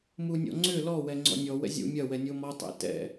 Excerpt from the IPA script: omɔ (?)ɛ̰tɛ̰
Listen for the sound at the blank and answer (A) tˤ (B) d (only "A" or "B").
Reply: A